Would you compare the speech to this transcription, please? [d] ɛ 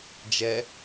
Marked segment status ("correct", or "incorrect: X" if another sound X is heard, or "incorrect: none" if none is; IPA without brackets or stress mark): incorrect: d͡ʒ